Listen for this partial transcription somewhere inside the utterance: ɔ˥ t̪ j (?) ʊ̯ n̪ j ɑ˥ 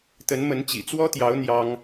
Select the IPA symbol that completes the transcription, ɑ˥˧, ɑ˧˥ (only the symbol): ɑ˧˥